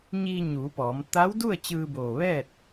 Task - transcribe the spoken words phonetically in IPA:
ɲiː˧ɲuː˩˧pɔː˩˧m t̪a˧˥wdu˥˨ə̯ t͡ɕɯː˧boː˧˩ʋɛː˥˨t̚

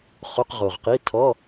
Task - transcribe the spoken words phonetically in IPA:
χo˧˥˧qʁo˨˩ʁqi˧˥˧ tʰɔ˧˥˧

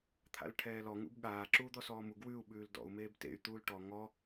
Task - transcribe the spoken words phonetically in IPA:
t̪ʰa̰lʈʰɛːlɔ ŋṵbɠaː ǁuːd̪ɔsɔːmu ɡwʉu̯ ɓʉːldɔ̰u̯ meːbtḛy̯ t̪uːlʈɔ ŋɔ

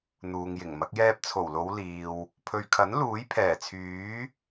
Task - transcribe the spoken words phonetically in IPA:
n̪uː˨ŋjɪ˨˩ŋmɐ˨˥k̚ jɛː˧p̚t͡sʰo˨˩wlo˨˧w liː˨w | pʰɵ˨ɥkʰɐ˨˥n luː˨˥jpʰɛː˨˩t͡sʰyː˨˥

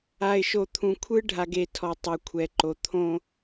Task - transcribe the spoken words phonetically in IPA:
a˨ɪ̯ʃo˨t̪ʰũ˨ kʷʰɯ˦ɖʱa˨ɡe˨ tʰɔ˨tˤɛ˨kʷʰɛ˨ǃo˨ t̪ʰõ˦

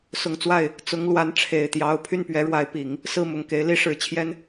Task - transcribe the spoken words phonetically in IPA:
sʊ˨˩ŋt͡swa˥˩ɪ̯ | t͡sʊ˧˥ŋlwa˧˥nʈ͡ʂʰe˨˩ɪ̯t̪jɑ˧˥ʊ̯ pʰy˥˩npɥɛ˧˥ɻwa˧˥ɪ̯pi˨˩˦ŋ | sɹ̩˥˩mʊ˨˩ŋke˧˥ɪ̯ li˥ʂɻ̩˧˥t͡ɕʰjɛ˥n

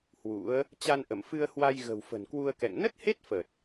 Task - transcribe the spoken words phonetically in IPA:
hwṵ˧˥ə̯ | t͡ɕa˧nʔə˧˩m fɨ˧ə̯hwa˧j ɣə̤˨˩wfə̤˨˩nkwu˧ə̯kɛ̰˧˨ŋ nə˦˥t̚he˦˥t̚fə˨˩t̚

